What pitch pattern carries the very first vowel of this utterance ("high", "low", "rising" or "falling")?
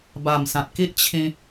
low